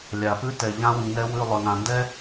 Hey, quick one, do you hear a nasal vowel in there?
yes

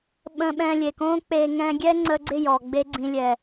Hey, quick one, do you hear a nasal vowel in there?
yes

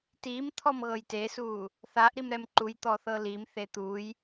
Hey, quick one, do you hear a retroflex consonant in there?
no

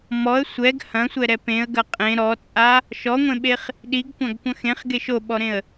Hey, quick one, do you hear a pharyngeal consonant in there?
no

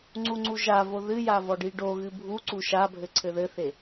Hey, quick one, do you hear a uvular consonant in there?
no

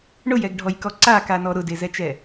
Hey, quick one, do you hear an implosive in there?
no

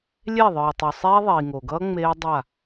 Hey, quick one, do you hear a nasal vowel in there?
no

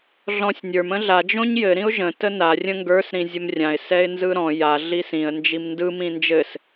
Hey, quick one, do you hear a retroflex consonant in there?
no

